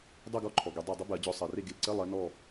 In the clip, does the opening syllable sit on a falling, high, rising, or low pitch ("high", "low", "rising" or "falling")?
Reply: falling